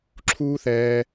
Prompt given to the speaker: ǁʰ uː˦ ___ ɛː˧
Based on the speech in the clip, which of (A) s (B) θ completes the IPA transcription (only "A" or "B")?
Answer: B